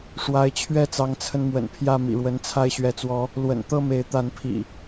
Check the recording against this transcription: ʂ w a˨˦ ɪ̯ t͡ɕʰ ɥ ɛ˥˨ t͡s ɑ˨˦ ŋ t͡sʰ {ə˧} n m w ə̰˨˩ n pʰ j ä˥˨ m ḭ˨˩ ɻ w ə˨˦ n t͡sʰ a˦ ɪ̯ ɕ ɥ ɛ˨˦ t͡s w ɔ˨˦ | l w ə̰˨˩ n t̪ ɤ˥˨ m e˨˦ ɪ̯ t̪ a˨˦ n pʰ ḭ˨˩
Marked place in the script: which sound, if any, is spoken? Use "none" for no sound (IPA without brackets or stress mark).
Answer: ə˧